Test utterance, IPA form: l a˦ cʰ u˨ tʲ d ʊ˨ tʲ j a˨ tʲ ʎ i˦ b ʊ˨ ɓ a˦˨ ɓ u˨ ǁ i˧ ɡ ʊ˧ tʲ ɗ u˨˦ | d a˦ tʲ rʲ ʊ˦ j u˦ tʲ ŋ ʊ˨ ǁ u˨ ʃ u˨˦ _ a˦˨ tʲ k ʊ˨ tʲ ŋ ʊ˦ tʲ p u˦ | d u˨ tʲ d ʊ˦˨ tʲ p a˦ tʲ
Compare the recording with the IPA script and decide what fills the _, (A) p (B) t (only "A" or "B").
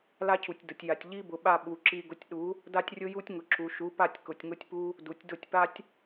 A